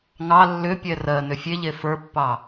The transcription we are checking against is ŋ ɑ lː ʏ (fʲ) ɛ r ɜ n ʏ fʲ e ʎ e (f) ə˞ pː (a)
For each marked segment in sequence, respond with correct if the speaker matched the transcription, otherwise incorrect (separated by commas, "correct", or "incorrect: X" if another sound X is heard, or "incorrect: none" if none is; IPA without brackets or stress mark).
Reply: incorrect: pʲ, correct, incorrect: ɑ